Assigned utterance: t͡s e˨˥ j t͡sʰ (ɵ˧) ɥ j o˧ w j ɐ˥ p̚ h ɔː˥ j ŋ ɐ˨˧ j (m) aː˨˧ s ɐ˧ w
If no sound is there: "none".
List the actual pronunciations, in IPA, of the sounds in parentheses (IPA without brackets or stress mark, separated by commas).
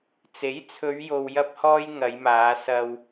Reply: ɵ˨˧, m